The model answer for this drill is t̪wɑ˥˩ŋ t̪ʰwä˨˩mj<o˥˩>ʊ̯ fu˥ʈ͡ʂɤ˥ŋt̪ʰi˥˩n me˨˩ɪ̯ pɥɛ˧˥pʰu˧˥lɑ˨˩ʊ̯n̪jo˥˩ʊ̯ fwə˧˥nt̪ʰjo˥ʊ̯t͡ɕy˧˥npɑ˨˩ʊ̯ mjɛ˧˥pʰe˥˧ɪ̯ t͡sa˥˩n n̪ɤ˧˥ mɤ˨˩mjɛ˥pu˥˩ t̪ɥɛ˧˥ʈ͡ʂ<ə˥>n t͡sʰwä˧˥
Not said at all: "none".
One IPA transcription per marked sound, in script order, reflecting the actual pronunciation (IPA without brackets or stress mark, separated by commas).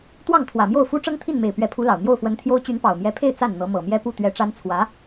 o˥˩, a˥